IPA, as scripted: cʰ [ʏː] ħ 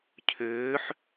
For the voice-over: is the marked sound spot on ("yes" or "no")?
yes